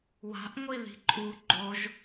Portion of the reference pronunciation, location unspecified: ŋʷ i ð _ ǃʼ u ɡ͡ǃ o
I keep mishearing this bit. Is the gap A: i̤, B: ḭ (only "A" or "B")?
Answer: A